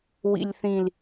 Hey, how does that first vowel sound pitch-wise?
low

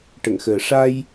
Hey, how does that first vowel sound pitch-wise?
low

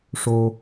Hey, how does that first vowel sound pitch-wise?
low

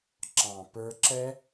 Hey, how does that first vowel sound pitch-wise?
low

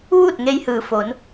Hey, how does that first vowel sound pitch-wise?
falling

